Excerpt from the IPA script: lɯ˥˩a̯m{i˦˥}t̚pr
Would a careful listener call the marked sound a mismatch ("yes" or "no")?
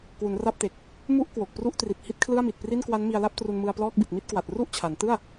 yes